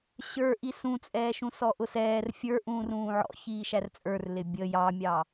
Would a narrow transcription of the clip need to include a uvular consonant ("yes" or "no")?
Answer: no